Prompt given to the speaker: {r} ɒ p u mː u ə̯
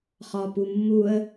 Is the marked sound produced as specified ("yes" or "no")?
no